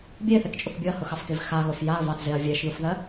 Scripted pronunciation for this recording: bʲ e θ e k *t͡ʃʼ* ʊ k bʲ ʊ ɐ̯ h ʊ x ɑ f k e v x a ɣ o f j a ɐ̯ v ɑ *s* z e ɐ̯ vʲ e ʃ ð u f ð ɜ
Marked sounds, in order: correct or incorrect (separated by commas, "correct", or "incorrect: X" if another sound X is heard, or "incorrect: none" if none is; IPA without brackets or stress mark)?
correct, incorrect: θ